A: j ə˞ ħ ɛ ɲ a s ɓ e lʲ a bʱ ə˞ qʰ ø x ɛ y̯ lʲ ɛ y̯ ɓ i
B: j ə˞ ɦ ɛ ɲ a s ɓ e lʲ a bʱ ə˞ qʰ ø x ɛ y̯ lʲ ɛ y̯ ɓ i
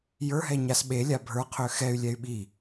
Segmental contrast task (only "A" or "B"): B